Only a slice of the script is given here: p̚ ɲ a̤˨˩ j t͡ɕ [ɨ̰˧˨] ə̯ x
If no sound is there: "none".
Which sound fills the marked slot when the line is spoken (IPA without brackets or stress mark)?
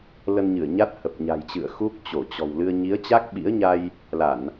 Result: ɨ̰˧˨